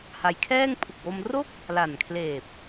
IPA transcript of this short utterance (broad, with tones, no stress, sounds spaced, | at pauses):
h a˧ j kʰ ɛː˥˩ ŋ pʰ u˨˩ k̚ w o˧ m r o˥˩ k̚ | l a˨˩ n kʰ l eː˨˩ p̚